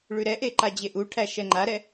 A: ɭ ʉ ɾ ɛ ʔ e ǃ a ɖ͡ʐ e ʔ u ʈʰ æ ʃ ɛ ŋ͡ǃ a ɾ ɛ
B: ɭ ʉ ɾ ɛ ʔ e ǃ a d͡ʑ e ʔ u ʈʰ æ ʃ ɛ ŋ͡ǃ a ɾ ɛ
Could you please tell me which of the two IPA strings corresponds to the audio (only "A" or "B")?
B